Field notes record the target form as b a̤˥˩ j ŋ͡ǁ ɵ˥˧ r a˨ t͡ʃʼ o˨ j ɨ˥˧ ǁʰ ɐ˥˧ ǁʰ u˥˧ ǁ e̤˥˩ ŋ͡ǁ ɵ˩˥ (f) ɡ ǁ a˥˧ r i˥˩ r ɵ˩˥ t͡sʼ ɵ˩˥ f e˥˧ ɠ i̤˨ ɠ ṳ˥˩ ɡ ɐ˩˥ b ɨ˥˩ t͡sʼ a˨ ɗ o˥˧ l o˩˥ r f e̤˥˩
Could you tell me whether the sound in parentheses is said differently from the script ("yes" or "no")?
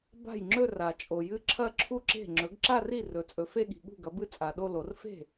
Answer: yes